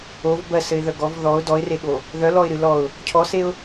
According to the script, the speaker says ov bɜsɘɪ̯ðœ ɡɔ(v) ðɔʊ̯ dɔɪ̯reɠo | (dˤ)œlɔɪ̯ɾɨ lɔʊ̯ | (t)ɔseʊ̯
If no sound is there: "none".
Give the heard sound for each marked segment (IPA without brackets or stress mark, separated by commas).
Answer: v, ð, cʰ